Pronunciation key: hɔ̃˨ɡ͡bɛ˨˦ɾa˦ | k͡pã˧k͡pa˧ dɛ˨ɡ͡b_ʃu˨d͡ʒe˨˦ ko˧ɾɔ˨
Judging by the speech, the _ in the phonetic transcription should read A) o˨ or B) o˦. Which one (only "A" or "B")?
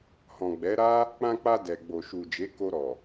A